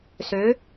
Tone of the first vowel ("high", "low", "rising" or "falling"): rising